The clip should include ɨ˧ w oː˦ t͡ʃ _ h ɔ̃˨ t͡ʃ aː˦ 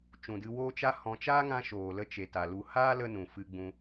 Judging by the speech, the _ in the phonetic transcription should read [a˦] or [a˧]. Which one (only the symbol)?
a˦